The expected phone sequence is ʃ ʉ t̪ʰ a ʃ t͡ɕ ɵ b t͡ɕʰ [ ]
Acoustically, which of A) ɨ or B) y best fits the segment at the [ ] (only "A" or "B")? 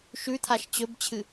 A